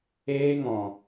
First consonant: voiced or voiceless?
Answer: voiced